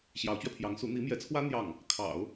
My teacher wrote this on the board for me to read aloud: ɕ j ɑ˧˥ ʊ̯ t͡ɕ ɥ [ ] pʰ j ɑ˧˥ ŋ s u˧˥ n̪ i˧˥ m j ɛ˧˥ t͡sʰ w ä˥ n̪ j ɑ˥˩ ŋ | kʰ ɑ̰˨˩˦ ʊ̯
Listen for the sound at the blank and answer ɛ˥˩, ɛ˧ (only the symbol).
ɛ˧